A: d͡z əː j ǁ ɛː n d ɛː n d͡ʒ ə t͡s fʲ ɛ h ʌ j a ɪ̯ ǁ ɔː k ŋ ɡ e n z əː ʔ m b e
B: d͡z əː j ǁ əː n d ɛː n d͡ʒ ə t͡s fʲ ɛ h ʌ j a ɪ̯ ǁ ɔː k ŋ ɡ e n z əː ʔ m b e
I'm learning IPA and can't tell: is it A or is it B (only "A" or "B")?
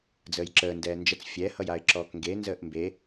B